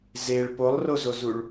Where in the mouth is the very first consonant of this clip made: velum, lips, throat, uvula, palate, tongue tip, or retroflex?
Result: tongue tip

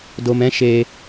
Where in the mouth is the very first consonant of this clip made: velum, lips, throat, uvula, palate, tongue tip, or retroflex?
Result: tongue tip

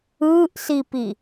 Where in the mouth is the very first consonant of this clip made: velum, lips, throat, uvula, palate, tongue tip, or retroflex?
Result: throat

